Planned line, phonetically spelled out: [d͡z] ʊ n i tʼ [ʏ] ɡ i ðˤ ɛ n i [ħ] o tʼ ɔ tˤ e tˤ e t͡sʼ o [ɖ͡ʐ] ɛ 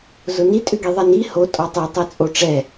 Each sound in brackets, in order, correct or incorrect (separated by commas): incorrect, correct, incorrect, incorrect